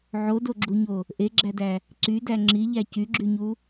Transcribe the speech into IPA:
ʕodoɡ͡ǁuɲo | ʔeɡ͡ǁædæ | ǀydæ ŋ͡ǁiʎæ cyɡ͡ǁyɲu

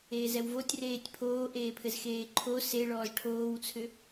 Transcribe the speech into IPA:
eːzɛwvotʲ reːtʲpʰoː ʔeːpʰɘzxeːǃʰo seɭɔːz ʈʰoːwt͡sʰʏ

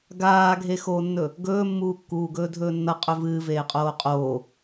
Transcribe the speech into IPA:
ɡaːɡʱexoːnːɵ | ɡɵːmːuːkːuːɡɵː dʱɵːnːɐqʼɵ vɨː veːqʼoːqʼoː

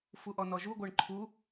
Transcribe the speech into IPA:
fuʔɔnɔʒu ɡʷɜɳǃʰu

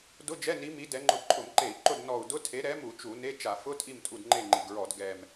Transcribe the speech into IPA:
dʊ˧˥˧d͡ʒɛ˧˥˧ni˨˥mi˨˥ dɛ˨˥ŋ͡ǃʊ˦˨ ǃʼʊ˧˩˧mǃe˧˩˧i̯ǃʊ˦˨d nɔ˦˨u̯ dʊ˧˥˧tʰe˨˥ ɾɛ˨˥mu˧˩˧ t͡ʃu˧˩˧ne˧˥˧ t͡ʃa˧˩˧fʊ˧˥˧tʼi˦˨m tʼu˦˨dŋ͡ǃe˦˨ŋ͡ǃi˨˩ɡɹɔ˧˩˧d ɡɛ˨˩m

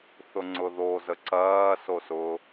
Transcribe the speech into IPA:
θʊŋ͡ǀʊðo zəǀɐː sosʊ

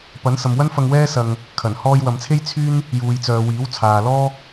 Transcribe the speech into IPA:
pɐ˨˥n sɐ˨mwɐ˥nfɐ˧ŋ wɛː˥sɐ˧ŋ | kʰɐ˨˩n hɔː˧jwɐ˨mt͡sʰe˥j t͡sʰyː˥n | juː˨jt͡sœː˨ wiː˨˥w t͡sʰaː˨lɔː˥

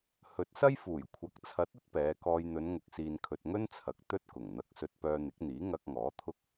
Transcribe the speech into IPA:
hɵ˨˥t̚sɐ˥jfuː˨˩j kʷʰɐ˨k̚t͡sʰɐ˨˥t̚ ɐ˥t̚pɛː˨˧kɔː˧j n̪ɵ˨˧nŋʊ˨k̚siː˨nkʰɵ˨t̚ ŋɵ˥nt͡sʰɐ˨k̚ t̪ɵ˥t̚kʊ˨˩ŋn̪ɐ˧k̚ sɵ˧t̚pœː˧n̪ɪ˨˥k̚n̪iː˨˥ ŋɐ˧k̚ŋɔː˨˥t̪ʰʊ˥k̚

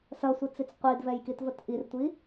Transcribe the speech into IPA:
sɐsʷit͡sit͡s qʷidvɛjkitvət ʔirtʷi

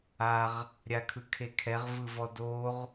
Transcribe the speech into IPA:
aʁ | ɾʲakʰɯkʰekʰɛʁ vɯvɔdoʁ

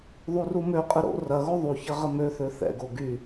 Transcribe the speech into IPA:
ðˤurumøqʼə ɾo̰ rɐɣo ðˤuçɐ ʁəmøθø θɛ̰ɡo ɡy

